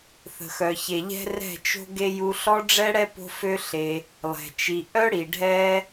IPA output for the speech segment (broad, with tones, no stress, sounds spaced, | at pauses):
θ ə̤˨ x œ˨ ç e˨ ʎ ɛ̤˦ r ɛ̤˦˨ t͡ʃ o̤˦ ɡ e˦ j u˧ ɬ ɔ˦ ɖ͡ʐ ɛ˦ ɽ ɛ˦ p o̤˦ f ø˦ ɬ e˧ | lˠ ɛ̤˨ t͡ʃ i˧ ʔ œ˦ ɽ i˨ ɖʱ ɛ˦